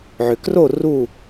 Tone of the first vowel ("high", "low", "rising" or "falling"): low